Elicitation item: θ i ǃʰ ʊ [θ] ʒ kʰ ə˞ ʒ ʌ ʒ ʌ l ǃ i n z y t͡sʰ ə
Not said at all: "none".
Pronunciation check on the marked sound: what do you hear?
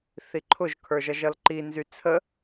none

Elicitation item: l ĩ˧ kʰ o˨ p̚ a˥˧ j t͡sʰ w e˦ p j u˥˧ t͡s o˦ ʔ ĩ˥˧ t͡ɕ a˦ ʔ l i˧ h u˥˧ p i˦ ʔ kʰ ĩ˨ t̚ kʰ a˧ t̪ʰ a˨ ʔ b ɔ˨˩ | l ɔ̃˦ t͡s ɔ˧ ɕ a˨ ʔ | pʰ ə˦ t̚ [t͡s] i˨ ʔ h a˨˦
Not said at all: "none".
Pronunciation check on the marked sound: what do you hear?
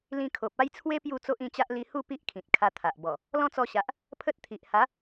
t̪ʰ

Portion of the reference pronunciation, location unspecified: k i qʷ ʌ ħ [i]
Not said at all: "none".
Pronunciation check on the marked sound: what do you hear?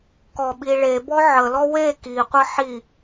i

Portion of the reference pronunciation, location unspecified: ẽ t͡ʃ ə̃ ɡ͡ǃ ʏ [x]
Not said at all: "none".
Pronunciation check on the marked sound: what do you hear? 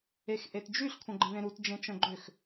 x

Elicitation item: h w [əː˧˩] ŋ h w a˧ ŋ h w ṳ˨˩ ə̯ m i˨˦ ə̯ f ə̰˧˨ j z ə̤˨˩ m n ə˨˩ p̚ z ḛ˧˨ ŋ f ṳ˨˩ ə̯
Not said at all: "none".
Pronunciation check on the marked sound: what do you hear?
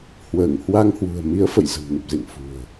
əː˧˩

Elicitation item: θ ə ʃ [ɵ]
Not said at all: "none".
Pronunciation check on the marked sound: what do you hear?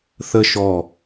ɔ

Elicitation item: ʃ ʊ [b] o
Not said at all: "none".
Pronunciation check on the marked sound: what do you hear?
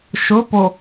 p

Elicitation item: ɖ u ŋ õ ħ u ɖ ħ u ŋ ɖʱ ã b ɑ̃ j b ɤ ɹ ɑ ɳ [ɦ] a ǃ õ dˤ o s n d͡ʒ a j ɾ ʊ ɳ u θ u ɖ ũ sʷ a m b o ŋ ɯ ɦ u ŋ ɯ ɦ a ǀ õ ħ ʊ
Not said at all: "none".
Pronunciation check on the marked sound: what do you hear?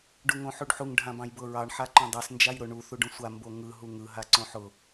ħ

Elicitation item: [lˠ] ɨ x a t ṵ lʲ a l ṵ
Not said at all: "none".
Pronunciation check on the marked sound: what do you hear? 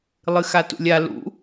lˠ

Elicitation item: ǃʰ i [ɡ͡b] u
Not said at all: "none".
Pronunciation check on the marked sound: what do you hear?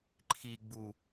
ɡ͡b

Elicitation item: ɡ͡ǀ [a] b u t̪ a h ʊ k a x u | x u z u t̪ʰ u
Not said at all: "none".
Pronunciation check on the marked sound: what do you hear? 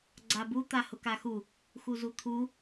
a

